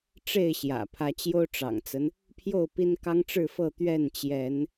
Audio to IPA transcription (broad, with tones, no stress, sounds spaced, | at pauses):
ʈ͡ʂ e˥˨ ɪ̯ ɕ j ä̰˨˩ pʰ ä˨˦ t͡ɕ j o˦ ʊ̯ ʈ͡ʂ ɑ̰˨˩ ŋ t͡s ə˦ n | pʰ j o˥˨ ʊ̯ p i˦ n k ɑ˦ ŋ ʈ͡ʂ ɻ̩˥˨ f ɤ˥˨ t̪ ɥ ɛ˥˨ n t͡ɕ j ɛ˨˦ n